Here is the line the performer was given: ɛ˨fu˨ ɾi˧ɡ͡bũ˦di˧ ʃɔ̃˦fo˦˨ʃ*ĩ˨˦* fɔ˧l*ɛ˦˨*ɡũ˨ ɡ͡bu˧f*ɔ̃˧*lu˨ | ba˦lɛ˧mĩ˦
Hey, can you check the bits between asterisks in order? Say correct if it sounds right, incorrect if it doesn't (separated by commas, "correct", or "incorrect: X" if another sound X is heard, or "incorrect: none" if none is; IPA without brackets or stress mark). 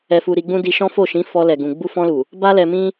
correct, incorrect: ɛ˨, correct